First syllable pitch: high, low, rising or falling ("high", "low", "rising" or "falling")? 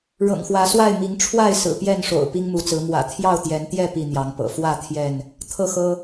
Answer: low